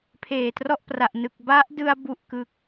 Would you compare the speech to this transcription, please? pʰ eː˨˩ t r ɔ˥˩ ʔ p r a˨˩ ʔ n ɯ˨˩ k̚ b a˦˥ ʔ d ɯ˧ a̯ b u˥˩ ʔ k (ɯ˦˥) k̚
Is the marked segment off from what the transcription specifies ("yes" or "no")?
no